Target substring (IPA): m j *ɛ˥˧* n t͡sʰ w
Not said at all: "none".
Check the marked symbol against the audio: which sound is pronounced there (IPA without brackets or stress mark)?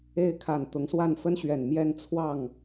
ɛ˥˧